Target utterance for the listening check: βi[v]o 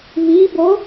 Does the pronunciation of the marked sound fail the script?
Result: yes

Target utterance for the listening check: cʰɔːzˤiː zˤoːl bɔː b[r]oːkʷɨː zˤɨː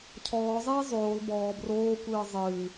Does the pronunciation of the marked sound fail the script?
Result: no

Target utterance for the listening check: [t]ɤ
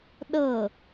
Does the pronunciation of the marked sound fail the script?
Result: yes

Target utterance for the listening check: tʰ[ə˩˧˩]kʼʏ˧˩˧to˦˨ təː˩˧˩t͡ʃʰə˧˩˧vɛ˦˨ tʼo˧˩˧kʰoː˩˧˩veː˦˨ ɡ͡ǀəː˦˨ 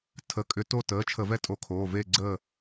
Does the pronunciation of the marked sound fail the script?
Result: no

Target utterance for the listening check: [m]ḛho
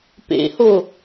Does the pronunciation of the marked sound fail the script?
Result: yes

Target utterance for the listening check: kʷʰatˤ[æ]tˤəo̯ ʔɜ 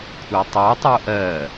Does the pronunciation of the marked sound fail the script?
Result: yes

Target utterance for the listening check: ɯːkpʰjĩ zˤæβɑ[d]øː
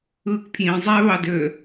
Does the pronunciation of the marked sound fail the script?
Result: no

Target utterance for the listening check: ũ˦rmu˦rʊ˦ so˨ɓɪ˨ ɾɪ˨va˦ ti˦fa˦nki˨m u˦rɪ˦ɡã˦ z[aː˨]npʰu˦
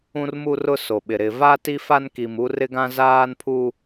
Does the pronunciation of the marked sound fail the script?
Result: yes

